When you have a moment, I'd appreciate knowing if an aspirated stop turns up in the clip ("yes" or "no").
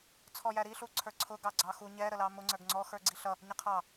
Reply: yes